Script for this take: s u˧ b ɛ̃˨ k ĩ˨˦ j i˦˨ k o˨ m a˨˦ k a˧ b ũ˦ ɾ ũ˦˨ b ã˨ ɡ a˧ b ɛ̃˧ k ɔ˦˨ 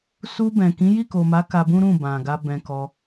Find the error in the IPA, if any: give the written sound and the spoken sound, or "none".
ɔ˦˨ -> ɔ˧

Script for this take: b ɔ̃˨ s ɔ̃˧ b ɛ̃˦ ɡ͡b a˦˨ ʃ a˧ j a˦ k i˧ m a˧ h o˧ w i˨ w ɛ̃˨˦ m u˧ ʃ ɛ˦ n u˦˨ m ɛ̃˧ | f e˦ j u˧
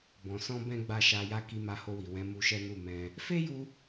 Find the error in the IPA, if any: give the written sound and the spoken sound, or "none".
none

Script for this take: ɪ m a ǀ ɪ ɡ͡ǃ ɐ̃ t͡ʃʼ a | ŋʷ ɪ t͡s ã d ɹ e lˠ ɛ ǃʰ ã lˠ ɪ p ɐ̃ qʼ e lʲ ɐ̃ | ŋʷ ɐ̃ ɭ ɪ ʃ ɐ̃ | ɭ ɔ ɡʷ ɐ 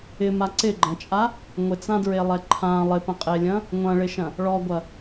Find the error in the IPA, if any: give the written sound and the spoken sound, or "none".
none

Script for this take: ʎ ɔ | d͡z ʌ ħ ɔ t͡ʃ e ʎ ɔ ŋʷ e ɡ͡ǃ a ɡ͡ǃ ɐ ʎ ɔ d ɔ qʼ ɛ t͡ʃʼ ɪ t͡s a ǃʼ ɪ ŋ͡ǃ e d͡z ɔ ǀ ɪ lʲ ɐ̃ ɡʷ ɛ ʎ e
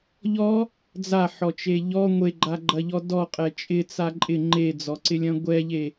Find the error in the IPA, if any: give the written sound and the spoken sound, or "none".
ʌ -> a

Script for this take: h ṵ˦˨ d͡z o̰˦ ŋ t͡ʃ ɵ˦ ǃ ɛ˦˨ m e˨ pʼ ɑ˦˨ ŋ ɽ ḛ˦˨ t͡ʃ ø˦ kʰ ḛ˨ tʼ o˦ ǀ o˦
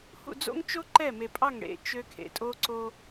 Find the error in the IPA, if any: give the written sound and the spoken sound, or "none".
ɵ˦ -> o˦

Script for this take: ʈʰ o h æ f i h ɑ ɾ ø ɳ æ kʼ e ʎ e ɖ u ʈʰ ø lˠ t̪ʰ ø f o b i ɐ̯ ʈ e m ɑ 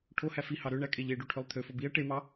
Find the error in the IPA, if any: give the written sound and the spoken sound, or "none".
none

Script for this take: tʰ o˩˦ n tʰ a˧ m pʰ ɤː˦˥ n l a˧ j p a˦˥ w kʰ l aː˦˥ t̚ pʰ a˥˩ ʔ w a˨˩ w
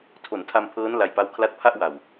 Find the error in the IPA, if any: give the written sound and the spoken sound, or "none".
aː˦˥ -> a˦˥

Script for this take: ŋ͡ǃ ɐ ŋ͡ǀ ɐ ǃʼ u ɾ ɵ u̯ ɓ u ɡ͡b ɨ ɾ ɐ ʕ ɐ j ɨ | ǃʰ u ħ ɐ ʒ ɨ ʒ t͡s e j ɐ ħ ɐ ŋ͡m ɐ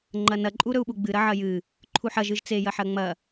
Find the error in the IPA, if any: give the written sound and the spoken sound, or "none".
ŋ͡ǀ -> n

